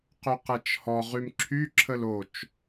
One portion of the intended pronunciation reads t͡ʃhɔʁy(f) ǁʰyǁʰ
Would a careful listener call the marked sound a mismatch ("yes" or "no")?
yes